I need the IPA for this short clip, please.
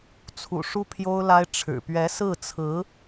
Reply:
t͡sʰ ṵ˨˩ ʂ u˥ pʰ j o˥ ʊ̯ l a˥ ɪ̯ ʈ͡ʂʰ ɻ̩˨˩ p ɥ ɛ˧˥ s ɹ̩˥˩ t͡sʰ ɹ̩˧˥

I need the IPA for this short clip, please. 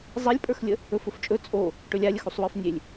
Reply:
zˤ e lʲ pʼ ə˞ x lʲ ə | ɵ f ɵ f t͡ʃʼ ɵ t͡sʼ o | ʈ ɵ lʲ a lʲ ə x u sˤ w ə˞ f nʲ e lʲ

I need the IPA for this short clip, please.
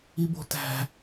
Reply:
i b o̤ t æ̤

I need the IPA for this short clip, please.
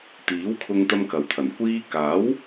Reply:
t̪ iː˨˥ w kʰ ʊ˧ ŋ t̪ ɐ˥ m k ɐ˨ w t̪ʰ ɐ˨˩ n kʷ iː˧ k aː˨˥ w

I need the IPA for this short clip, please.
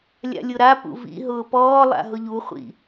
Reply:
lʲ a̰ lʲ ʊ ɾ a p ṵ v ḭ ɦ ʊː p ɔː lˠ a̰ ɦ ʊ ʎ u χʷ ḭ

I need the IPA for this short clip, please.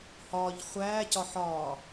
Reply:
h ɒː ʎ χʷ æː c ɒ ħ ɒː

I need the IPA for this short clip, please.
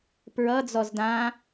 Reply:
p ɹ ʌ d͡z ɔ z d ã

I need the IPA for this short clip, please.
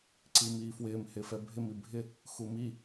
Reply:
ǀ i m iː f w ɪː m h ɪː f ɛ bʱ ɪ m i bʱ ɪ | x u m i

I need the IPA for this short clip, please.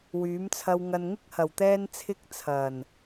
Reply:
w yː˨˥ m t͡sʰ ɐ˧ w ŋ ɐ˨ n ŋ ɪ˥ k̚ h ɐ˨˩ w t̪ ɛː˥ n t͡sʰ ɪ˥ k̚ t͡sʰ ɐ˨˩ n

